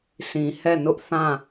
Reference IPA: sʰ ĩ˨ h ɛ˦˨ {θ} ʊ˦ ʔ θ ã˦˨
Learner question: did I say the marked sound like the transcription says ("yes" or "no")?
no